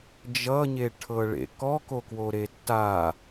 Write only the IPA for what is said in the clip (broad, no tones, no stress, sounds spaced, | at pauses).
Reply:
d͡ʒ ʌ ɲ e ʈʰ ɤ ɭ ḛ k ɔ k o k w o ɾ e tː a